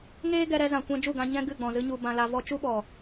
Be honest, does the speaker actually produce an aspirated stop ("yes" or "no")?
no